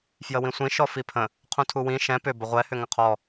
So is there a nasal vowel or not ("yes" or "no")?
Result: yes